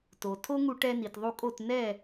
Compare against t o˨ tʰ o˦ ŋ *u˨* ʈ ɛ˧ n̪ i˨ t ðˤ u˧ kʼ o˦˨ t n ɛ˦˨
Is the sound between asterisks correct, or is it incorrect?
incorrect